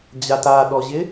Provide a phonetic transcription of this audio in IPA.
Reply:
d͡ʑ a t a ɗ ɔ ʑ ɪ

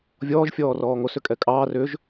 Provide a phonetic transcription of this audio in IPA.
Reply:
vʲ ɔː ʒ fʲ ɔː r ɔː ŋ o s ʏ kʼ ɛ kʼ ɑː r ʏ ʒ

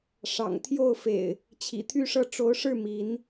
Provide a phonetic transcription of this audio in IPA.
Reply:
ʂ ɑ̰˨˩ ŋ t̪ʰ j o˥˨ ʊ̯ f ḛ˨˩ ɪ̯ | t͡ɕʰ ḭ˨˩ t̪ʰ y˥˨ ʂ ɤ˥˨ ʈ͡ʂ o˨˦ ʊ̯ ʂ ɻ̩˥˨ m i˨˦ n

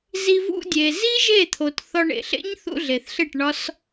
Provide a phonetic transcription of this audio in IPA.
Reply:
z i˧ v ṵ˧ dʲ e˨ z i˦ ʒ e˦˨ t̪ʰ o˨ t θ ɒ˧ ɳ ḛ˨ ɬ ḛ˦ ɲ θ ṵ˧ ɮ e˨ θ ɬ e˦˨ ʈ ɳ ɒ˦ s

